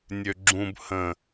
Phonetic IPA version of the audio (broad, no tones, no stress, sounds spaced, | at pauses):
nʲ ø ɡ͡ǁ ũ b h ə̃